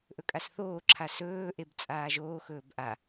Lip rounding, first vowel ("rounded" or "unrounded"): rounded